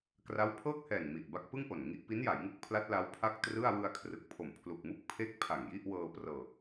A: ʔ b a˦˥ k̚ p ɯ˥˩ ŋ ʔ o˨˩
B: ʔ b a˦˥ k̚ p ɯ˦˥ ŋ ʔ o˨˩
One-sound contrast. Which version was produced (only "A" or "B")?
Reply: A